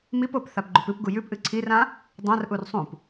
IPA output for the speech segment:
mipop θapɡ͡ǃʉpɨpɡu jʉpʔɨ ǀʰirã | dˤãrʔur sˤũp

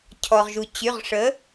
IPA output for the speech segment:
cʰɔ˩ʁʒu˩ t͡ɕy˩˧˩ʁʂə˩˥

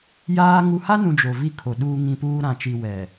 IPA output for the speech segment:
jaː˦ ŋu˨ha˦nũ˨ d͡ʒo˨vi˦ kʰo˨ɗuː˦ŋĩ˦puː˦ ɾã˨t͡ʃi˨ wɛ˨

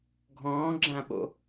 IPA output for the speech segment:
ɡʱɔ̃ːɡ͡ǁãɓo̰

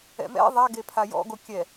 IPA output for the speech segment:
ɛ̰mɛ̰ ðˤaɡe pʰajɔ̰ɡo kʲɛ

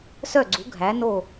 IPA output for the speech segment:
sœ˥˩ɡ͡ǀu˩˥ ɡʱæ˩˥no˥˩

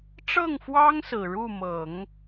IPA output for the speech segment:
ʈ͡ʂɤ˥˩ŋfwɑ˥ŋ sɹ̩˨˩ɻu˥˩mɤ˨˩˦ŋ

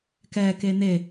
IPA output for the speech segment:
kɛ ken̪e

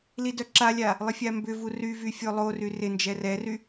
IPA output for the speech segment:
lidœǁalʲa | lˠɪfʲambʏvu ryvy fʲolˠory rɪ nd͡ʒɛrɛry

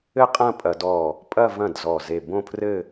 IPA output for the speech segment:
ɘ˥˧qʼɐ̃˥˧pʼɐ˧˩˧dɔ˧˩ | pʼɐ˥˧vɐ̃˥˩dzɔ˧˩ ze˧˩bõ˥˧pʰrɘ˥˧

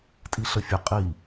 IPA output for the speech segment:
tʼiɬəfʲə qʼi

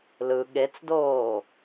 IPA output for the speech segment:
lɯ ɠet͡sdoː

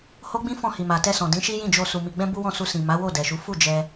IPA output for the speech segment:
ho˦ɡ͡bĩ˦ fɔ̃˦˨hi˨ma˨ tɛ˧sɔ̃˨ dĩ˨˦ʃi˦jĩ˦˨d͡ʒo˧ su˨mi˨ɡ͡bɛ̃˧ bu˦wɔ̃˦˨su˧ sĩ˨ma˨˦wo˦˨ dɛ˨ʃu˨˦ fu˦˨ d͡ʒɛ˧

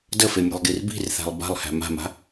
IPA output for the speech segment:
dəfe mʲe̤lˠɡirbi̤rθæ̤lˠ ba̤lˠhæ̤ ma̤ma̤

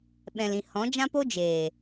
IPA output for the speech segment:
ɓɛ̃˨lĩ˨ hɔ̃˨˦d͡ʒã˦po˦ d͡ʒeː˨

